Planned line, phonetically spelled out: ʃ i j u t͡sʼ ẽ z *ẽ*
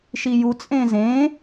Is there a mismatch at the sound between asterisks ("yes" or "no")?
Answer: no